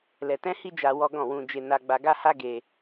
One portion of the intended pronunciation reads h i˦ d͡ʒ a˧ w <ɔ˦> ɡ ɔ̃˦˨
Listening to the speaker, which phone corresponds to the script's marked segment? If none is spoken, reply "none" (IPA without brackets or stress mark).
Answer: ɔ˦